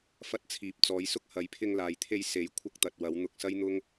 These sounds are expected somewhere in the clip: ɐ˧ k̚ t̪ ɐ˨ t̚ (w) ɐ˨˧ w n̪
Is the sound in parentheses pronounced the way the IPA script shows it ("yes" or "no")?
yes